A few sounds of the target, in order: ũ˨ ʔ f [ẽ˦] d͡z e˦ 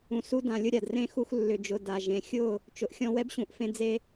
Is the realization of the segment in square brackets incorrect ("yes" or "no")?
no